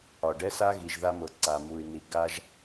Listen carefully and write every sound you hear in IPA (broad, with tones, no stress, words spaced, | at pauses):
ɒ˨ɖɛ˦sa˦ɣi˨ʒ ða˦mɤ˨ ǀa˨mu˨y̯ ni˨ ɡa˦ʒ